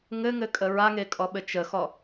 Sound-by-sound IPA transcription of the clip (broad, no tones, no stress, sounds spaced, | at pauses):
ŋ ɘ ŋ ɘ kʼ ə ɹ a ŋ e kʼ ɔ ɓ ɘ t͡ʃ ə x ɔ